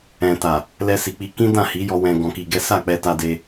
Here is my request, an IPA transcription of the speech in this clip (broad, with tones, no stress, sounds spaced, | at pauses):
ɛ̃˨ t a˨ | l ɛ˧ s i˨ k͡p i˧ k ĩ˦ d ã˦˨ h i˨˦ j ɔ˧ w ɛ̃˧ ɡ ɔ̃˧ k i˧ ɡ ɛ˦ s a˦˨ k͡p ɛ˧ t a˧ d e˧